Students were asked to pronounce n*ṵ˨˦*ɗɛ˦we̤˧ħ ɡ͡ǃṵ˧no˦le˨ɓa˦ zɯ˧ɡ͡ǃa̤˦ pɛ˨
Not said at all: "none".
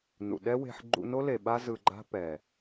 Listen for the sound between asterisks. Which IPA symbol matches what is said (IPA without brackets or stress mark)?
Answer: ṵ˨